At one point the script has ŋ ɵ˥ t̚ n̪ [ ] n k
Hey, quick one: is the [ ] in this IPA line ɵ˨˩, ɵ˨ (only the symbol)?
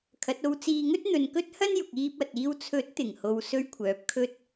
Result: ɵ˨